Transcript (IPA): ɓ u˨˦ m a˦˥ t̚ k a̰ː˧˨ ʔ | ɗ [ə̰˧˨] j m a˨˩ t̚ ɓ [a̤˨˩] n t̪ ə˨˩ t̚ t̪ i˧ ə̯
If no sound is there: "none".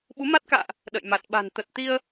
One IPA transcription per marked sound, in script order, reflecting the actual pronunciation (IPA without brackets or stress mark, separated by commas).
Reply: ə̰˧˨, a̤˨˩